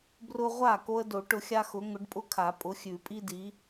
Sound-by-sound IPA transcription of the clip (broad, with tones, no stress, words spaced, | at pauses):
brʊ˦ʁʷa˥˩ ko˦ə̯do˨˩˦ʈʊ˨˦xʲa˦ xʊ˨˦ ŋʊ˨˦ɖpʼʊ˦kʰa˨˩˦ pʼʊ˨˦xʲʉ˨˩˦pʼi˦di˨˦